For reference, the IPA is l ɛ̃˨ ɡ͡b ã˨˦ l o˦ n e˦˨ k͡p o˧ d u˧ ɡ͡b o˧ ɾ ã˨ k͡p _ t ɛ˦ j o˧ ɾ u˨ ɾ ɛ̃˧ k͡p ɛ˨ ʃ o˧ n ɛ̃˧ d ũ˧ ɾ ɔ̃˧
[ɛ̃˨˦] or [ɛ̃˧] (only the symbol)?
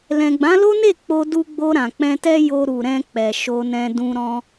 ɛ̃˧